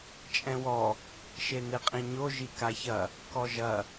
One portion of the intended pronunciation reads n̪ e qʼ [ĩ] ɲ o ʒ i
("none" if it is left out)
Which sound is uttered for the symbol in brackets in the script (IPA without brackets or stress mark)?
ĩ